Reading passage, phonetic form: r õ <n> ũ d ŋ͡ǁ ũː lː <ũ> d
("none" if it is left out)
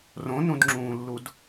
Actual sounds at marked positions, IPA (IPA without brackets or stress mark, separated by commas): n, u